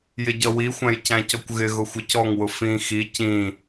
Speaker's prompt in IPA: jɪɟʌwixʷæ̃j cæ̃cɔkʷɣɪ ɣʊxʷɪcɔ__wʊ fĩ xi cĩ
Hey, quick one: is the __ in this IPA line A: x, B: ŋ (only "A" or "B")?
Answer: B